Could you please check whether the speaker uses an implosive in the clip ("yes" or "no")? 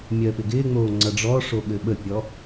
yes